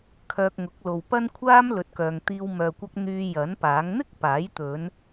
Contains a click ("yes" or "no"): no